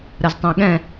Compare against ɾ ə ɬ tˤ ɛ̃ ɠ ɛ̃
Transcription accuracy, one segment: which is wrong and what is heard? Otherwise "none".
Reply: ɬ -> z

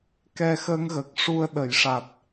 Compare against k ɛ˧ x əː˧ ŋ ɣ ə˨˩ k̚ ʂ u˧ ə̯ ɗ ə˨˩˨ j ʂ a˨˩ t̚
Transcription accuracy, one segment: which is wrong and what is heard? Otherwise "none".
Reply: none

